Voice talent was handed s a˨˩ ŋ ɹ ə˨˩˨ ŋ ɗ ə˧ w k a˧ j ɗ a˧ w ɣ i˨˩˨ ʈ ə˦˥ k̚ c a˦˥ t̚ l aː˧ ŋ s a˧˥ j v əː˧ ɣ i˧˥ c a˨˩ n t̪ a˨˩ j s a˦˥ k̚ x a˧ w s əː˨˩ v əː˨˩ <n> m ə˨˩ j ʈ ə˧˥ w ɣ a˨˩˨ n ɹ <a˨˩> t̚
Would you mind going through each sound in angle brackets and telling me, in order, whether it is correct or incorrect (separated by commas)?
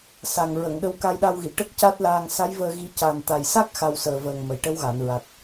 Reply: incorrect, correct